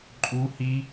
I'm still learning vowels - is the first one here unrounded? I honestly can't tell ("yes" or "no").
no